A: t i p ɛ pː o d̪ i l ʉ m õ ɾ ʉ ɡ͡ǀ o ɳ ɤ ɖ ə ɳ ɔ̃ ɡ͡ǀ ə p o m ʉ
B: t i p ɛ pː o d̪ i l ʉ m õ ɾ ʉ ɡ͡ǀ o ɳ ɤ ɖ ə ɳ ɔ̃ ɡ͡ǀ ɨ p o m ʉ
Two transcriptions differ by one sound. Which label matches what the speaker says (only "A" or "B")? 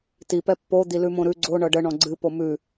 B